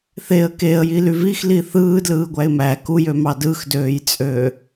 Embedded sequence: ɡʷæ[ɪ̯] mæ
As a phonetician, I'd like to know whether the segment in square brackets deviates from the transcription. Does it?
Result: no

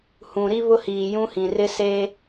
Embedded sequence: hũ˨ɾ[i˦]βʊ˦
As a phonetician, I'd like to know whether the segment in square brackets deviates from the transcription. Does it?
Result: no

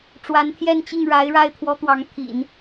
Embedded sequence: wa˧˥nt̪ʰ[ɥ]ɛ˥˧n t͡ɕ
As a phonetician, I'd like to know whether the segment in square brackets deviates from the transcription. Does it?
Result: yes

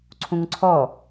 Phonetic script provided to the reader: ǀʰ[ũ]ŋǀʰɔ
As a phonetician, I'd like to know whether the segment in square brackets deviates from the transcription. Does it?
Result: no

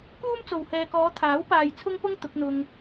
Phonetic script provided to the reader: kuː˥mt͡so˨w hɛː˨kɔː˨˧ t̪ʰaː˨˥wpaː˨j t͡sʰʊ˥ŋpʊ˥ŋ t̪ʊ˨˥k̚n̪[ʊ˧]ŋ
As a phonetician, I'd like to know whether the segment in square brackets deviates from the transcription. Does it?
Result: no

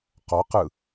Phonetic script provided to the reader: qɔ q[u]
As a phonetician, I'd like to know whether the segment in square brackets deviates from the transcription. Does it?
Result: yes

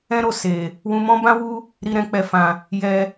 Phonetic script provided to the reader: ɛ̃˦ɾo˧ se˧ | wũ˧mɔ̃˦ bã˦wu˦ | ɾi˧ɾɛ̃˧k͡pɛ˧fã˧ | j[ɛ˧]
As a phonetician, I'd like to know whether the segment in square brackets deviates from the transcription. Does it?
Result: no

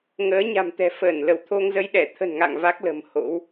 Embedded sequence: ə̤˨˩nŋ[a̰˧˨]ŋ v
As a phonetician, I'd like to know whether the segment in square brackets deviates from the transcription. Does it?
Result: no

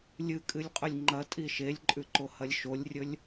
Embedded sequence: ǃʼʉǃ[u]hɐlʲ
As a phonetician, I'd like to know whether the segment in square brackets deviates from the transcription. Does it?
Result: yes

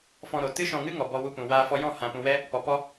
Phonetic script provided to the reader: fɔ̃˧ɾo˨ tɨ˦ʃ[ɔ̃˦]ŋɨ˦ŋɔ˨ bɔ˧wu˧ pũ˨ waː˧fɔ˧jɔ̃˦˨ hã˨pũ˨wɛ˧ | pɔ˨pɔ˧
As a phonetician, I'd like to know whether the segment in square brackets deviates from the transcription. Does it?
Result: yes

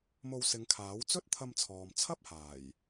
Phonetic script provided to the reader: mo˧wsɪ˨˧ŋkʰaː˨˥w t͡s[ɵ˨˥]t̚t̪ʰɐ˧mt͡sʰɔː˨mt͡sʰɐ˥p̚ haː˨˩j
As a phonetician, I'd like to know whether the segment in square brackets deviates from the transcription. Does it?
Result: yes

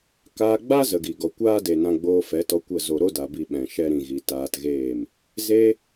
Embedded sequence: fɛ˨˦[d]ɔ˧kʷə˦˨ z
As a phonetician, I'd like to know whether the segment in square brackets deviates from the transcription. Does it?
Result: yes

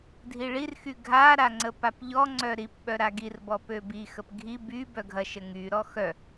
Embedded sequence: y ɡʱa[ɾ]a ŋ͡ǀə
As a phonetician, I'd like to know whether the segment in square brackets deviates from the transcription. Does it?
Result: no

